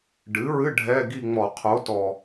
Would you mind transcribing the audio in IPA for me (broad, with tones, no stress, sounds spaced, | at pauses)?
ɖ ɨ˩˥ ɹ ɨ˧˥˧ ɖʱ ɛ˧˥˧ ɡ i˥˧ ŋ͡m ɔ˧˩˧ qʰ o˩˥ t ɔ˨˩